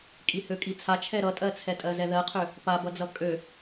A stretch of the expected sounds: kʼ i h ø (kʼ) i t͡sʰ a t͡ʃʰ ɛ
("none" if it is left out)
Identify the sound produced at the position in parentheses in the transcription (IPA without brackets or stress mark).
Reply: kʼ